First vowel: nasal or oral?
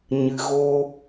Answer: oral